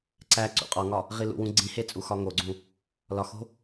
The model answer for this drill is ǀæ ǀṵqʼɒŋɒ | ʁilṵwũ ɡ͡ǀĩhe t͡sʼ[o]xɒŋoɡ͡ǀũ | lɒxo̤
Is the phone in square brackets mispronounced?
yes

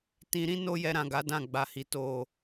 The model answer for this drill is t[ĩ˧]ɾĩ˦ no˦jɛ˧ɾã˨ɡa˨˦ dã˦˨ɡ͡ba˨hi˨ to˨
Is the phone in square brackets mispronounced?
no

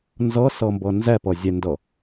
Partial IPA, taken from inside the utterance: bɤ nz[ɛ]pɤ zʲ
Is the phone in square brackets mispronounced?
no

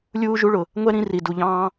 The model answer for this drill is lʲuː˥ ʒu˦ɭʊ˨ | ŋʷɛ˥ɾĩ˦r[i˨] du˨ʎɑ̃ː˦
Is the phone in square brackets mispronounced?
no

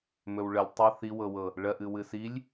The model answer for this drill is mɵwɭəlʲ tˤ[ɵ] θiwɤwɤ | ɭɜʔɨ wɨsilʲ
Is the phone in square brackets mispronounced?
yes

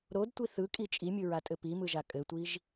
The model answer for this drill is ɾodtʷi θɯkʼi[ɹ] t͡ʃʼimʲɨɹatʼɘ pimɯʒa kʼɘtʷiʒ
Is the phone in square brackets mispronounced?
yes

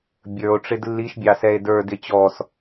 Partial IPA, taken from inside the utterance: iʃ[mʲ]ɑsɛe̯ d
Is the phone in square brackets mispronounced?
yes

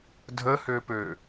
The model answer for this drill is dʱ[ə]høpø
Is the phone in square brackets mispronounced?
no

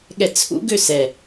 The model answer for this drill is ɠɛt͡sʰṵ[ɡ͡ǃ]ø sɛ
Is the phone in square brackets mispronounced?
yes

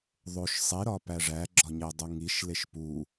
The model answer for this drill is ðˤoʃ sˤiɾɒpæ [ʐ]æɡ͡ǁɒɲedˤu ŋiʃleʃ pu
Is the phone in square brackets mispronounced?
no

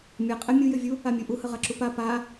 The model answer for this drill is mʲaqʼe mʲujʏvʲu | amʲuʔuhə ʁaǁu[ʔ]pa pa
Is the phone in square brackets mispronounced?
yes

